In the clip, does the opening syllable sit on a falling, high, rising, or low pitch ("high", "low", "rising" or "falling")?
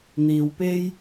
low